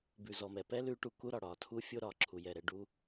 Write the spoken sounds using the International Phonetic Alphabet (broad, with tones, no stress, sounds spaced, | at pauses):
b ʉ˨ z ɔ˨ m ɛ˨ p ɛ˦ l ʉ˨˦ ʈ u˨ k u˦ ɾ ɒ˨ ɽ ɒ˨ tʰ u˦ fʲ o˦ ɾ ɒ˨ ǁʰ u˨ j ɛ˦˨ ɾ ɛ˦ ɖ u˦